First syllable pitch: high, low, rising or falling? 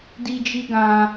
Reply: high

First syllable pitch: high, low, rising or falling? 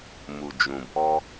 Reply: low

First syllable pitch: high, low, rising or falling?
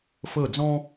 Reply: falling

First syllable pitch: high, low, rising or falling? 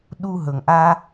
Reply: high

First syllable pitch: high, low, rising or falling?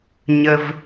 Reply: low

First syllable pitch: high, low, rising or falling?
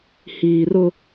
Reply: low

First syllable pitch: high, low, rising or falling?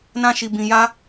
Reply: high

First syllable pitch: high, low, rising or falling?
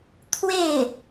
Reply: falling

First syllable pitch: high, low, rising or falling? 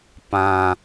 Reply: low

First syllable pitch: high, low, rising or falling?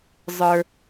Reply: low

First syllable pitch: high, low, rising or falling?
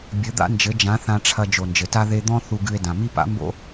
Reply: rising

